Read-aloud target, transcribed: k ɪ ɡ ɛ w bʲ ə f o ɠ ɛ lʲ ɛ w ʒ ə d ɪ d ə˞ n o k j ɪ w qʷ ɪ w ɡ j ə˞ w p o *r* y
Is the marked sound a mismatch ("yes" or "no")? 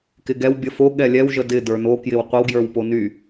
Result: yes